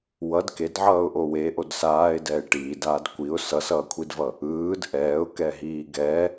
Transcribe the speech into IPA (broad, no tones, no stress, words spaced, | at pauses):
wʌd kedʕʌːʊ̯ ʔowe ʔodsaːɪ̯ dɛːɪ̯ʈiːdaːd kʷiʊ̯ sʌsʌːkʷʰidvʌ | ɯːd ʔɛːʊ̯kɛ ɦiːɡɛ